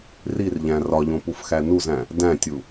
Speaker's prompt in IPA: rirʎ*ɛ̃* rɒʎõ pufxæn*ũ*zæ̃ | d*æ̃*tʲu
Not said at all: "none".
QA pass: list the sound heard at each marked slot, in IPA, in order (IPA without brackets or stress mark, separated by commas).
æ̃, u, æ̃